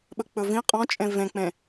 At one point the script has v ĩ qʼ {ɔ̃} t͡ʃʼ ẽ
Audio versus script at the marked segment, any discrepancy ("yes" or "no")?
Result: no